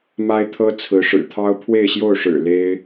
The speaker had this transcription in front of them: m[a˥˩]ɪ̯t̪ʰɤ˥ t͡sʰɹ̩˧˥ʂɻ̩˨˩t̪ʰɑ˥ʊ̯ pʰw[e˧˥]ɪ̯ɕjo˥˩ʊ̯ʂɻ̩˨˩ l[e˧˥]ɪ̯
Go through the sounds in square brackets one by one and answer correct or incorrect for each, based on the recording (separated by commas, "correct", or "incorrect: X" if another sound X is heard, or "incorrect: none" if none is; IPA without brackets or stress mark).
incorrect: a˥, incorrect: e˥˧, incorrect: e˥